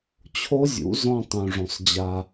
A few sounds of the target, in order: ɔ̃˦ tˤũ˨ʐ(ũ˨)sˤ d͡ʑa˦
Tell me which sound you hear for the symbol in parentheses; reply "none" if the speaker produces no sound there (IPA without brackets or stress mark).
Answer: õ˨